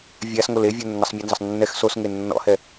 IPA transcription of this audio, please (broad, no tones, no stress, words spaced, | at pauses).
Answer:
vʲasŋol evʲə nːəsˤmʲanzəsˤ nːɛx sosŋe nːɔ̰hɛ